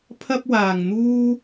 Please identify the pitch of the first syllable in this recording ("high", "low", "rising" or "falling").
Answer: high